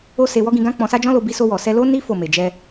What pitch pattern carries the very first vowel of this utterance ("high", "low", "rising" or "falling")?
high